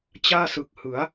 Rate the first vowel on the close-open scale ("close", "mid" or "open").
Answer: open